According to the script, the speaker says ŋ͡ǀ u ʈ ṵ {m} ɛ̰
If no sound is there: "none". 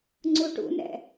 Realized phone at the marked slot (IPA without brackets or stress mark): n